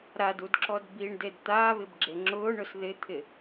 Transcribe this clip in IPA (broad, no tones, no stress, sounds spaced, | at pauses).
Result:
ɾ a d u d ǁ ɔ d b i ɳ d e d t̪ aː β ɪ b ɡ͡ǁ e ŋ͡ǁ ʊː ɳ ʊ s ð ɪ t̪ʰ ɪ